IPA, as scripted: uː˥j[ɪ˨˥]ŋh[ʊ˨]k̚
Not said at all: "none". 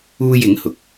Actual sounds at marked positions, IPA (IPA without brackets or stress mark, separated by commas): ɪ˨˥, ʊ˨